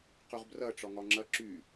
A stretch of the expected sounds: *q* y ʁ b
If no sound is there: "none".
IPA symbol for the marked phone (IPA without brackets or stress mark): q